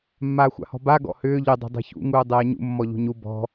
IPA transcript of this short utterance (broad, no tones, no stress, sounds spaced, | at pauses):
mː aː xʷ a̰ h ɔ̤ b a ɡ ɔ̰ h ʏː ʎ ʏ dˤ ṳ dˤ ɛ̤ ç ṵ ŋ uː dˤ ɛː ɲ ṵ mː ɔ ʎ ṳ ɲ u b ɔ̤